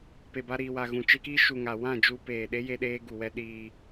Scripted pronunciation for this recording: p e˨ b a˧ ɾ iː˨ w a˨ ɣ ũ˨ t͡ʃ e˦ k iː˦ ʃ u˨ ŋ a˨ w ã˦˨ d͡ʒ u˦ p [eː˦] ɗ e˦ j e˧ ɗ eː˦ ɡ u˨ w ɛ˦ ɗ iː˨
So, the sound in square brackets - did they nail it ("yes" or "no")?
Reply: no